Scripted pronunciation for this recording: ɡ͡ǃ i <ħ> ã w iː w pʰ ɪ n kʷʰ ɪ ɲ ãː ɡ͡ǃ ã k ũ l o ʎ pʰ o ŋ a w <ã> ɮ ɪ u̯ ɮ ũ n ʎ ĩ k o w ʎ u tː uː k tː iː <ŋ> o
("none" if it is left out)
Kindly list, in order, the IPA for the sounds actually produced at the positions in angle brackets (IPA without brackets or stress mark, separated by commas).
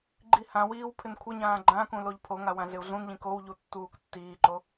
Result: h, ã, ǃ